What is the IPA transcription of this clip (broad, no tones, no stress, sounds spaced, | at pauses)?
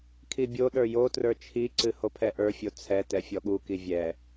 kʰ i bʲ o ɗ ə˞ j o t r ə˞ t͡ʃʰ i ǀ ɨ h o pʰ ɛ ʔ ə˞ fʲ o t͡sʰ ɛ t ɛ fʲ ɔ ɠ u k i vʲ ɛ